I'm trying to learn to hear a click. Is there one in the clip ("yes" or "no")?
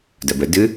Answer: no